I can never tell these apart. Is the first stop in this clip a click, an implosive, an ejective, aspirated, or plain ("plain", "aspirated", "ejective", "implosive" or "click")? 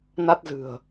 plain